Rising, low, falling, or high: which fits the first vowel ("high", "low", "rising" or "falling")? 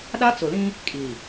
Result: high